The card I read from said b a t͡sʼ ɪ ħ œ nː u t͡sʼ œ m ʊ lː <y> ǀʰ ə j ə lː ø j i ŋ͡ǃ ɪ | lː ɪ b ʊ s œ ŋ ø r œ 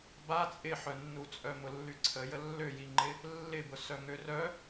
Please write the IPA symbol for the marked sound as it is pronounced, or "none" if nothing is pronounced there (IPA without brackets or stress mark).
y